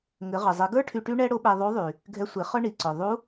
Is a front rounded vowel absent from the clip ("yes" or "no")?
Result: no